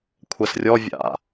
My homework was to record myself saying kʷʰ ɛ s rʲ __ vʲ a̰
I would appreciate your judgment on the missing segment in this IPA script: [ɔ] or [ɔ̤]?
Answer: ɔ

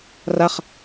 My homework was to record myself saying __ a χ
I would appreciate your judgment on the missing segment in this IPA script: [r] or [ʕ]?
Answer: r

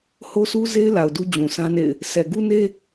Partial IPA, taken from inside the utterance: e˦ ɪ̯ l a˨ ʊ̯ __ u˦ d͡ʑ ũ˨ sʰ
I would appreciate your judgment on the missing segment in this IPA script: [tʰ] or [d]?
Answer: d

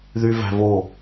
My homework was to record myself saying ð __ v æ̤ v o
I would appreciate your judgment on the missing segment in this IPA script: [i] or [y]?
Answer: y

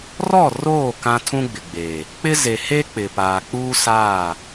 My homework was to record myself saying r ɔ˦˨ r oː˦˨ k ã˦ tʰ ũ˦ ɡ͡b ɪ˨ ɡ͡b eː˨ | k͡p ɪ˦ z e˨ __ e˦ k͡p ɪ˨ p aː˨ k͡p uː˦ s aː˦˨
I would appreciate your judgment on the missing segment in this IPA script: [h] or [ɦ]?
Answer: h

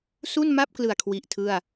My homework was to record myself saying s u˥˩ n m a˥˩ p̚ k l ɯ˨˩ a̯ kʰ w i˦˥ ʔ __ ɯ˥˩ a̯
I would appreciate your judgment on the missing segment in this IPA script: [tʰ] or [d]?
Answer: tʰ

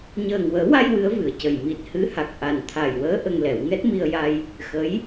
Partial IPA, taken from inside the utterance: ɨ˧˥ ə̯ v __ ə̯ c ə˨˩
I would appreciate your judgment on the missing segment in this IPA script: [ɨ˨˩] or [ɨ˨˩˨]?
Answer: ɨ˨˩˨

